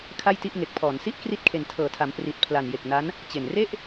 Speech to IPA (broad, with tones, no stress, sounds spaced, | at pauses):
kʰ a˥˩ j t i˥˩ ʔ ŋ e˨˩ k̚ pʰ ɔː˩˦ n s i˦˥ ʔ k r i˦˥ t̚ kʰ e˨˩ n tʰ ɤː˩˦ tʰ a˩˦ m p r i˨˩ t̚ pʰ l a˨˩ n j e˨˩ k̚ n a˦˥ n | t͡ɕ e˨˩ n r e˥˩ ʔ